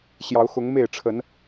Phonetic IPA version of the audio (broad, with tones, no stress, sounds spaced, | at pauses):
ɕ j ɑ˨˦ ʊ̯ x ʊ˨˦ ŋ m e˥˨ ɪ̯ ʈ͡ʂʰ ə˨˦ n